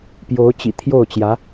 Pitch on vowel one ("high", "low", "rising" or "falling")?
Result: rising